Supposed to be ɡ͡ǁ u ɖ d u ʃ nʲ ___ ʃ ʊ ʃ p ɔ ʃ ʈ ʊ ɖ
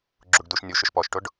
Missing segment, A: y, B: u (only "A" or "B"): B